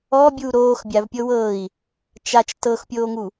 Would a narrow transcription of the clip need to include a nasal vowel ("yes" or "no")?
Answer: no